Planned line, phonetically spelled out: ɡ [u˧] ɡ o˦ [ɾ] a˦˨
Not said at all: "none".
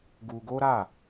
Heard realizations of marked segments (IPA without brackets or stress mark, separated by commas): u˧, ɾ